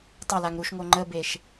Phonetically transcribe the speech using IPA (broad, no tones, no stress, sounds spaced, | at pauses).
tˤ ə l a ŋ ɾ u ʃ ŋ o ŋ͡ǃ ə b e ʃ